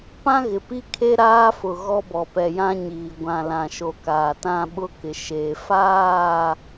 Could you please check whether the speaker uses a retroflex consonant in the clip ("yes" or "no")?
no